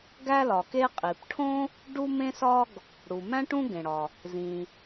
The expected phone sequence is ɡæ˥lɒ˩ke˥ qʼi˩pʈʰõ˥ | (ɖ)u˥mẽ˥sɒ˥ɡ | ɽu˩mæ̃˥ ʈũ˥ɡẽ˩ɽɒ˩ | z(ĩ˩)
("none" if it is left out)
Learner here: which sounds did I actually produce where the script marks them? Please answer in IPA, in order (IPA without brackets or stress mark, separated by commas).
ɖ, ĩ˩